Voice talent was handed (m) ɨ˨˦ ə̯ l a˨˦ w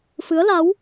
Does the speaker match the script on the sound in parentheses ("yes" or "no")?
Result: no